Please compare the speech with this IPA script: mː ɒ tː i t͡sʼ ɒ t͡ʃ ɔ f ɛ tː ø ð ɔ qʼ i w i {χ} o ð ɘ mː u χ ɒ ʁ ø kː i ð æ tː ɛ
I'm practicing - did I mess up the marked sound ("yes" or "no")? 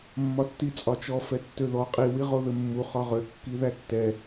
yes